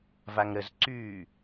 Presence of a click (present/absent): present